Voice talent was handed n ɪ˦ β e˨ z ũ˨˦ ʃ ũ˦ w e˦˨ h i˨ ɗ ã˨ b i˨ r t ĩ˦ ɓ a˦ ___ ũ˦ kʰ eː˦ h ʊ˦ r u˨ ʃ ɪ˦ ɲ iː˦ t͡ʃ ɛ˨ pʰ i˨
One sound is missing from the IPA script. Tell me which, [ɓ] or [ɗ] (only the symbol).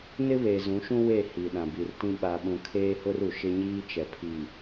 ɓ